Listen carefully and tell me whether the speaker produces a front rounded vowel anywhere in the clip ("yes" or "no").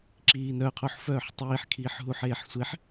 yes